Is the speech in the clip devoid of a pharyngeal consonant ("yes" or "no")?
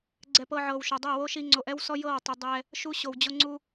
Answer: no